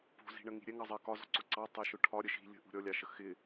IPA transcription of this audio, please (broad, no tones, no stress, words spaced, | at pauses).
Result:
pṳzi̤ɳəŋi̤ ɾʲɛŋɑzˤɜ kɒzɔ̤ǀʊ ǀɑtˤɛʃʊ ʈʰɒɾʲə ʃi̤ lʲə̤ʔṳ ɾʲɔlʲɑʃə xɪ